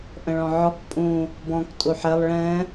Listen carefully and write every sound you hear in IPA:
ʔ ə̃ ɭ ɔ̃ ʕ ɔ k pʼ ũ | b ɔ̃ k tʼ u ħ ɛ lˠ ɭ ɛ̃

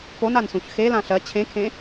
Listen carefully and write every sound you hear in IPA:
p o n a n s ũ ç x e l ã ɬ ɜ t͡ɕʰ ẽ kʰ ẽ

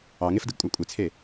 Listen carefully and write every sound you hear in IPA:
ɑ ŋ e f d ɯ ɡ kʷʼ æ kʷʼ e t͡sʰ e

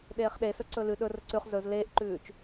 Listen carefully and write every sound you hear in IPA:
ɗ eː χ ɗ e s ɵ ǀ ɵ l ʉ ɗ ɵ r ɵ ǀ ʉ χ z ɵ z l eː ʔ ǃ ʉː t͡ʃ

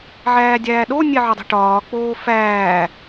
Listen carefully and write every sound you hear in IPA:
ʕ æː dʲ æː ɗ o nʲ e ʕ ɒ dˤ i̤ ʈ ɒː k͡p oː f æː

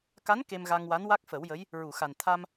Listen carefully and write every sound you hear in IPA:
k a˧˥ n k e˧ m ɣ a˧ ŋ w a˧˥ n w a˦˥ k̚ f ə˨˩˦ w j ə˧˥ j | ɹ u˨˩˨ x a˨˩ n t̪ʰ a˧ m

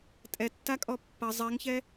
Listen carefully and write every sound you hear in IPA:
tʼ ɛ tː a kʼ ɔ pː ɐ zˤ ɛ ŋ ç ɛ

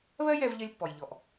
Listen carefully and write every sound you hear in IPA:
β ɜ˦ j ɛ˧ v ʎ ɜ˦ lʲ pː ɔ˨ j ʎ ɔ˨ ʔ

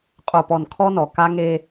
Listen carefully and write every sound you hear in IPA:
qʼ o˨ p ɔ˨ n kʰ ɔ˦ n ɔ˨ k a˦ ŋ e˦

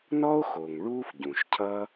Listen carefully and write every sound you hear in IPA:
n ɔ˥ o̯ x o˩ ŋ ɭ uː˥ f ɟ ũ˩ ʃ cʰ ʌ˥

